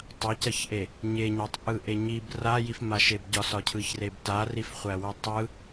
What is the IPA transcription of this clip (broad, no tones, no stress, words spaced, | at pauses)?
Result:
tˤacɐçʔe | ɲeɲætˤʔɯʔe ɲib rajifmaʃeb ɟɒsɒcʰɯçreb tarifχʷæwɯ tˤɯ